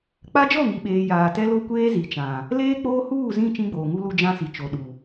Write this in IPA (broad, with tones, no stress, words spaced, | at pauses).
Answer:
k͡pa˦ d͡ʒɔ˦˨ŋi˨ɓeː˨ jaː˨ tɛ˦lo˦ kʷeː˦ zi˨t͡ʃã˨ | leː˦k͡poː˦ huː˦˨zĩ˦˨ t͡ʃĩ˦ɡ͡boː˨ŋu˦lu˦ d͡ʒã˦si˨ t͡ʃo˨ ɗu˨